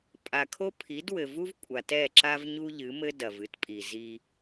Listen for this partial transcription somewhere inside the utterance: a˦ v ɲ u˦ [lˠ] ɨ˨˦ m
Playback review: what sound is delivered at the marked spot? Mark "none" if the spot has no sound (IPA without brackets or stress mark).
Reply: ʎ